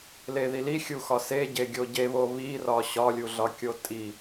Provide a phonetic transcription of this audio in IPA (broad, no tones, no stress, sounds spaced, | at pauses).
l e ð i l i xʲ u x ɒ s e ɟ e ɡʲ o ɟ e β o β i r ɒ ɕ ɒ lʲ u ɮ ɒ kʲ o tʼ i